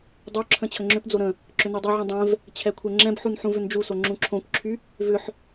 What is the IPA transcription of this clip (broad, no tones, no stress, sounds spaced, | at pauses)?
dˤ o ǁʰ ə̃ t͡ɕʰ ə ŋ͡ǁ ʏ p d͡z o ɾ ə̃ | ǁ ʏ n i dˤ ɛ ʕ ũ dˤ ɛ̃ v | t͡ɕʰ ɛ kʷʰ ɛ ŋ͡ǁ ɛ̃ b ħ u n ħ ũ v ʏ n d͡ʒ u s o ŋ͡ǁ ũ ǁʰ õ kʷ ǁʰ y | v ʏ ħ